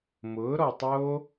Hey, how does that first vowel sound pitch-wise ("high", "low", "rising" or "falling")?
rising